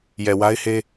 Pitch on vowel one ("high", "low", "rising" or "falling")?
low